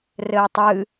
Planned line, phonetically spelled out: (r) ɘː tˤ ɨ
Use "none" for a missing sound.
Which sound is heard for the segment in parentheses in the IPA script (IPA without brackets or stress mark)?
r